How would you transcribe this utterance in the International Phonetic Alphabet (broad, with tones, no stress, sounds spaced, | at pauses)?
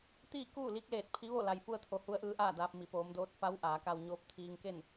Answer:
t̪ iː˥˨ k uː˥˨ l i˧˥ k̚ l eː˧˩ t̚ pʰ i˧˥ ʋ o˥˨ l a˩ j f u˧ ə̯ t̪ʰ o˩ h u˧˥ ə̯ ʔ ɯː˧˥ ʔ aː˥˨ d aː˧ p̚ m i˩ p oː˩˧ m d oː˧˥ t̚ f a˧˥ w ʔ aː˩˧ k a˧ w ɲ oː˧˥ p̚ t̪ʰ iː˧ ŋ k e˥˨ n